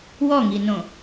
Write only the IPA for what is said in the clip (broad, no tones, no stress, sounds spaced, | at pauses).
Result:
w ɔ ŋ i n õ